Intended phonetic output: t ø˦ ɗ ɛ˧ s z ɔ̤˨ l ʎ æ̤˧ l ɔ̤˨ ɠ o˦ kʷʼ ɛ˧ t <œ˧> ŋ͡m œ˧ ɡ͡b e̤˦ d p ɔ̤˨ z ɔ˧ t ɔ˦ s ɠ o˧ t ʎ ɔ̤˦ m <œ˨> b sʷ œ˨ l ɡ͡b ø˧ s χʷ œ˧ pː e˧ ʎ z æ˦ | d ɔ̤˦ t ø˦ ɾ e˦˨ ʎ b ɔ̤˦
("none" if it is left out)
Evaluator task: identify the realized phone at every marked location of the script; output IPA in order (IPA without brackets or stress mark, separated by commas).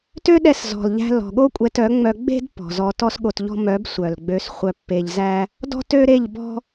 œ˨˦, œ˨˦